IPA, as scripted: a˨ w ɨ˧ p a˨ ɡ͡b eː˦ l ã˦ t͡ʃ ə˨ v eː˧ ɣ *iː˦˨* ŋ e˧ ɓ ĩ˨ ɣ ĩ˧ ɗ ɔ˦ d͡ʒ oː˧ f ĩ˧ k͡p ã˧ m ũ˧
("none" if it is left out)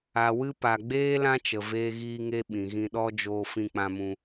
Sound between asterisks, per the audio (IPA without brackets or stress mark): iː˧